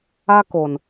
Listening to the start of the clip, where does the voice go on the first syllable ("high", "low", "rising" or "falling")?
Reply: high